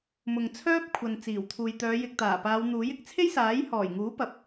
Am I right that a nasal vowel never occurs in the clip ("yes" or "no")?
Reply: yes